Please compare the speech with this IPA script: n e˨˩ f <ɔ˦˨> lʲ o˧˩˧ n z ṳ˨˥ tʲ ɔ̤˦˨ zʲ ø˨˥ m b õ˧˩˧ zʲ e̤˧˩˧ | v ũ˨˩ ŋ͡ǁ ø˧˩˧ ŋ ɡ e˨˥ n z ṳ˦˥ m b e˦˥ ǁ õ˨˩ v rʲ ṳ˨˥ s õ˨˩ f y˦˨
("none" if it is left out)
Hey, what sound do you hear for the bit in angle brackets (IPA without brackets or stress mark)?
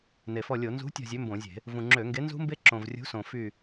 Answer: ɔ˦˨